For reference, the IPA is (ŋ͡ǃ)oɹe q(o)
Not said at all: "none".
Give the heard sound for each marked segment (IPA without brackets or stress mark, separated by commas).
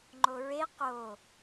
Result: ŋ͡ǃ, o